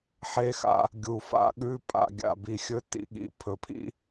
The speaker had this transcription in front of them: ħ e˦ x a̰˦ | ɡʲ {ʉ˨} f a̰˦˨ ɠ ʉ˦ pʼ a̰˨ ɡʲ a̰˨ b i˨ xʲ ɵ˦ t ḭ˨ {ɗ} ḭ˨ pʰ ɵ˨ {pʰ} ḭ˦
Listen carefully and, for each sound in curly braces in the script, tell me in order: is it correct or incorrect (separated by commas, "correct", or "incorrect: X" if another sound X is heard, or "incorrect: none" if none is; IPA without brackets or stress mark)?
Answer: incorrect: u˨, incorrect: ɠ, correct